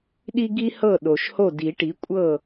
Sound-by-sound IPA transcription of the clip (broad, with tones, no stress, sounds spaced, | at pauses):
ɗ i˥ ɡ i˥ h ɤ˥˨ ɗ o˨ ʃ h o˥˨ d i˨˩˦ ʈ i˩˥ kʷʼ ɤ˥˨